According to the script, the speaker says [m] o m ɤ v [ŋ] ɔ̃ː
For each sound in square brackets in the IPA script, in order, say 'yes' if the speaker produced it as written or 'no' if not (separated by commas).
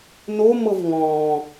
no, yes